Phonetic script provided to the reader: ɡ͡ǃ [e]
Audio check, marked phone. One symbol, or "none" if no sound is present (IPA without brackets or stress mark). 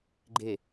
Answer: e